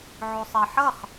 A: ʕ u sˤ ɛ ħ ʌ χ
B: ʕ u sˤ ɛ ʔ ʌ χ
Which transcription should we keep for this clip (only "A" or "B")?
A